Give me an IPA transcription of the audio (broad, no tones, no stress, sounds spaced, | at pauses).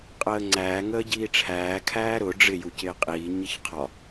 qʼ əː ŋ͡ǀ æː ŋ əː ɟ iː ʈ͡ʂʰ æː kʰ æː ɾ ʊ ɖ͡ʐ ɪ j u c ɪː qʼ iː ɲ ɪ ç qʰ ɒ